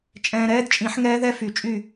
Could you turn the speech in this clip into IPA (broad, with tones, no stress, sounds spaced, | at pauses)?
t͡ʃʼ ɛ̃ː˨ ɾ ɛː˦˥ d t͡ʃʼ ĩ˨˩˦ ħ ŋ ɛː˦˥ ð ɛ˦˥ f y˨˩˦ t͡ʃʼ y˥˨